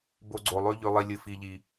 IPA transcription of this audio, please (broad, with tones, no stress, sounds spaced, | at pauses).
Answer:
b o˧ ɡ͡ǀ o˨ lˠ ʉ˧ ʎ ʉ˨ lˠ i˨ lʲ ɨ˨ f i˨ ʎ i˨